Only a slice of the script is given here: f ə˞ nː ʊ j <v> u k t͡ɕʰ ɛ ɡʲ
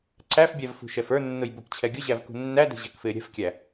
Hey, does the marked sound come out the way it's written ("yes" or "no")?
no